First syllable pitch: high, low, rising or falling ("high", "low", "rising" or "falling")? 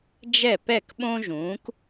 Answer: falling